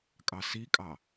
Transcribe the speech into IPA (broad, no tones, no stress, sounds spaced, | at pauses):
kʼ ɑ s i kʼ ɑ